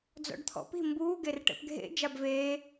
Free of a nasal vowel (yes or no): yes